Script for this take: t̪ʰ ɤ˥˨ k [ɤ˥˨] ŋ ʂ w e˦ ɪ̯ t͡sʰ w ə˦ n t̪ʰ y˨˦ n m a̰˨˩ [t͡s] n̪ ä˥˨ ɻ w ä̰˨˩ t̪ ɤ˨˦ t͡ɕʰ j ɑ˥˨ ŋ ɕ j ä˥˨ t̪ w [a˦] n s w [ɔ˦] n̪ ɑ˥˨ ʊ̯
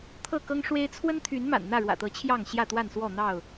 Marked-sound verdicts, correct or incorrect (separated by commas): incorrect, incorrect, incorrect, incorrect